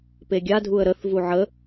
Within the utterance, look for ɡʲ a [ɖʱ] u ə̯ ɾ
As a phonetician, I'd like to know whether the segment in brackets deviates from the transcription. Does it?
yes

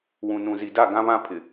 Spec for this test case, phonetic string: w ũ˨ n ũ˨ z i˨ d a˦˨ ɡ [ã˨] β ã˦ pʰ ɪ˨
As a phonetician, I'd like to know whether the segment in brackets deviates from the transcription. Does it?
yes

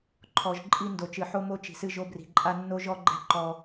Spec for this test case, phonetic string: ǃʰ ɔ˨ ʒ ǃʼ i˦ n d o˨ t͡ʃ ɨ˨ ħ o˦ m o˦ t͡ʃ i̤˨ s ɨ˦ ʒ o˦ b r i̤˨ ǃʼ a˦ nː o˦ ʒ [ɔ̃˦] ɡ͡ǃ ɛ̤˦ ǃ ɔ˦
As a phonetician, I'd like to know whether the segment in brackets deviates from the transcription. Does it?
yes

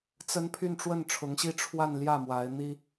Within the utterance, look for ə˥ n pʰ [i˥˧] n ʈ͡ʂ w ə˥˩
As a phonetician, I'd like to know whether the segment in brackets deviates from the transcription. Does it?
yes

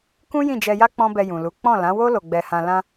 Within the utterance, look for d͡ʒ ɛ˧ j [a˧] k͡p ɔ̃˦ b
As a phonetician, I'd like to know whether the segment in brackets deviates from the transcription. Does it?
yes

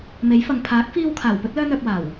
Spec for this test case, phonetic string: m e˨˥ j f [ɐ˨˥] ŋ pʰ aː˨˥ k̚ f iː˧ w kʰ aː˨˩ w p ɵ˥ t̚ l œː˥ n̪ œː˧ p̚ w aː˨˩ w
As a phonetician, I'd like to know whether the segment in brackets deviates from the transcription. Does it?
yes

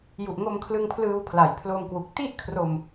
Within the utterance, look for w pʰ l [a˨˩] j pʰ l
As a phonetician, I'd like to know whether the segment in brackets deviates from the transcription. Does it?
no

